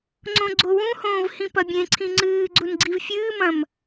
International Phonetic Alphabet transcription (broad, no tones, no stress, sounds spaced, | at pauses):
ŋ͡ǀ õ ɡ͡ǀ o w ũ h õː v h ĩ p ɐ bʲ ẽ ǀʰ ĩ ŋ͡ǀ ɨː ɡ͡ǀ u n ɡ͡ǀ i v fʲ ɨː m ɐ̃ m